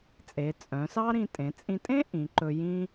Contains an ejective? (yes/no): yes